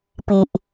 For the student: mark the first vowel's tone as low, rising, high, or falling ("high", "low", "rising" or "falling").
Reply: low